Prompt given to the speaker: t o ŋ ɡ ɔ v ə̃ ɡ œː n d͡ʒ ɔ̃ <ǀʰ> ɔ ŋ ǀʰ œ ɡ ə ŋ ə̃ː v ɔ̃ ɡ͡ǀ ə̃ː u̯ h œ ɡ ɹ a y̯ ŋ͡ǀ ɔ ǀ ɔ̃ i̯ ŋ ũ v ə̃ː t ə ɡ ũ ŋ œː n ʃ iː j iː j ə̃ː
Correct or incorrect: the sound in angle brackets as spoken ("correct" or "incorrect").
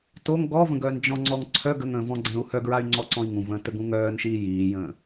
incorrect